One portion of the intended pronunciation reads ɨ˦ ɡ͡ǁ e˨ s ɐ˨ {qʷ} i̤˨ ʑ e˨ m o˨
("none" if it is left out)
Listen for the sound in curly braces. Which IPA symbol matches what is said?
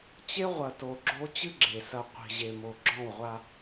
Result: qʷ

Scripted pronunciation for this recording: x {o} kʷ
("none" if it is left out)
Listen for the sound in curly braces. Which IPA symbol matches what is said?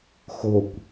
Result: o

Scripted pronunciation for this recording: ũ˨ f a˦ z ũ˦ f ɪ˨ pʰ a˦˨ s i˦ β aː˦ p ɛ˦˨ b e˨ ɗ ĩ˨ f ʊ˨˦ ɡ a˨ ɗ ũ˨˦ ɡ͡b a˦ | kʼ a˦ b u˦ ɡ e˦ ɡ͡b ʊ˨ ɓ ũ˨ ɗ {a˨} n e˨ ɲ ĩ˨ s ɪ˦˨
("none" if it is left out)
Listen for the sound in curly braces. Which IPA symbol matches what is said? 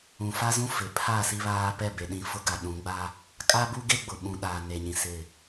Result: aː˨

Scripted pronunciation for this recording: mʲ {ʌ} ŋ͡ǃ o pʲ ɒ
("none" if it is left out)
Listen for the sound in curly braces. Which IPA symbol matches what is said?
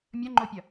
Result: ɒ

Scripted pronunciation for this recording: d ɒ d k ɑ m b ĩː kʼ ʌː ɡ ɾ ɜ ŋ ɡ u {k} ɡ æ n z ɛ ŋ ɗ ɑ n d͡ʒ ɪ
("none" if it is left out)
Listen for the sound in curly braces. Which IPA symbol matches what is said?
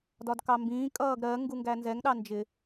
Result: ŋ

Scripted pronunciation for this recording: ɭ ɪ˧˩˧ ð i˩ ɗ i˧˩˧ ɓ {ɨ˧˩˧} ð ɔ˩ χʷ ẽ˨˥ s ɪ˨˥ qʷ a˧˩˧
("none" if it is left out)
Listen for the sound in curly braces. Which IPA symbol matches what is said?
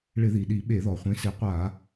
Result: e˧˩˧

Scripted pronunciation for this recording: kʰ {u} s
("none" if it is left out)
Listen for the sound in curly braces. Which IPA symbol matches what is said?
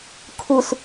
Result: u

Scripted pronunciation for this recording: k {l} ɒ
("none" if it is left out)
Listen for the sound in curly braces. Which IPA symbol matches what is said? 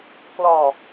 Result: l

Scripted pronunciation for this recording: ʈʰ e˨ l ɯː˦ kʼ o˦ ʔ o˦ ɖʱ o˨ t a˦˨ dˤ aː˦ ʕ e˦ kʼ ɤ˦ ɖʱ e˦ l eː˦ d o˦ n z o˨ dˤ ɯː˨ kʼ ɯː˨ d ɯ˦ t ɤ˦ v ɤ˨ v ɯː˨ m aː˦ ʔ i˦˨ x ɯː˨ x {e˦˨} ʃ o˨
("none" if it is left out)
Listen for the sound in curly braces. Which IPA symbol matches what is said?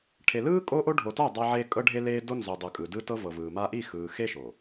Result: e˦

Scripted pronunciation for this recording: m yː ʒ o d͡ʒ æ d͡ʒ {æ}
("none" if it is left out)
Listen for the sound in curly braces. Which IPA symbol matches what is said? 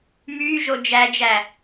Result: æ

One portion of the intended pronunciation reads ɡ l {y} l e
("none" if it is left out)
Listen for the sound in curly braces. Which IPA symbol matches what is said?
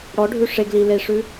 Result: i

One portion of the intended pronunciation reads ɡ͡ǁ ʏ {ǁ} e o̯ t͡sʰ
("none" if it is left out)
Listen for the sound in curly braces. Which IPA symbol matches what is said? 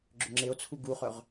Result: ŋ͡ǁ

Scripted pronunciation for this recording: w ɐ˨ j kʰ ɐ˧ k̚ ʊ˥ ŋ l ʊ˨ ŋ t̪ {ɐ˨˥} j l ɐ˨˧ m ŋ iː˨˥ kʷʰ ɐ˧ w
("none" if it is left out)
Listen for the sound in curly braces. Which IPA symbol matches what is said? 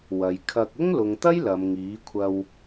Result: ɐ˥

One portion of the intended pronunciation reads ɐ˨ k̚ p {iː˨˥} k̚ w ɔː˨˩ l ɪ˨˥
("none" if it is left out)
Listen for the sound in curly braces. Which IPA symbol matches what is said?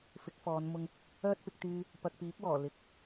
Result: iː˨˥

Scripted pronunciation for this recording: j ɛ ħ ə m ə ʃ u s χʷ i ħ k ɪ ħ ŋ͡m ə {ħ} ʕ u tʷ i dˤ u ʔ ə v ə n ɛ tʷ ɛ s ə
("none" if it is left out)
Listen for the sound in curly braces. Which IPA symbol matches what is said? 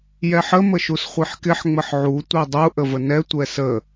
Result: ħ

